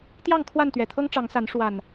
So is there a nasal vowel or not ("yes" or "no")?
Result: no